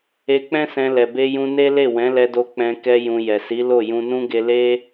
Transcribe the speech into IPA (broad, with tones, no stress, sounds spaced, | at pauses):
e˧ k͡p ɛ̃˦ s ɛ̃˧ l ɛ˨ b e˧ j ũ˧ n e˦ l e˦˨ w ɛ̃˨˦ l ɛ˧ d o˧ k͡p ɛ̃˧ k ɛ˧ j ũ˨ j ɛ˨ s i˨˦ l o˦˨ j ũ˧ n ũ˦ ɡ e˧ l e˦